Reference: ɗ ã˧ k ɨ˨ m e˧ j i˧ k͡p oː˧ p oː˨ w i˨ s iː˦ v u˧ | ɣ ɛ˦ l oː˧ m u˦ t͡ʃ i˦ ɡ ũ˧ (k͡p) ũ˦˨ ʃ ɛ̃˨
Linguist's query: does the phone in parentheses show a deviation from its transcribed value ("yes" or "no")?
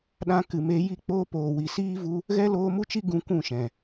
yes